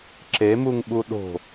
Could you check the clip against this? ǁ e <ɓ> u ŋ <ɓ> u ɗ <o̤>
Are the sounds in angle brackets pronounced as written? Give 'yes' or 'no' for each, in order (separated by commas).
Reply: no, yes, yes